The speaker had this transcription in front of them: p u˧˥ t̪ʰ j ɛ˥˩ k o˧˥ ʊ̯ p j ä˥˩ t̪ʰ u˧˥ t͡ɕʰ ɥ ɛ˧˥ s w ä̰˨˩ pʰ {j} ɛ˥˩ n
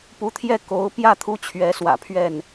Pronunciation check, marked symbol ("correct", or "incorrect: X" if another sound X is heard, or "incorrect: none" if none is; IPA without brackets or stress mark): incorrect: ɥ